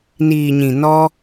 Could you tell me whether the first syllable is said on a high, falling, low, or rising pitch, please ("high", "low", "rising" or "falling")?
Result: low